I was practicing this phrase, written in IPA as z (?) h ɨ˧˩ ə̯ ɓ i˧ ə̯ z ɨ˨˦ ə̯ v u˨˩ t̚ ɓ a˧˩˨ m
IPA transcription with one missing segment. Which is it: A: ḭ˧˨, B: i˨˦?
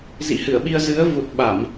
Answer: A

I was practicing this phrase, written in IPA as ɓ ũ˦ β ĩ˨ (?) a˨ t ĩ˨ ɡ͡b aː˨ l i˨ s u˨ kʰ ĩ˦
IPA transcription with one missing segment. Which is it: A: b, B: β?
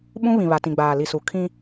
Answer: B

